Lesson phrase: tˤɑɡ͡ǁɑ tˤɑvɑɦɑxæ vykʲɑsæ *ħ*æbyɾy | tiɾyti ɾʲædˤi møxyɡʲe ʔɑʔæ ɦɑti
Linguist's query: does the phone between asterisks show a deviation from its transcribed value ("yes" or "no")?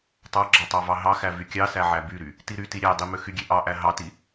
yes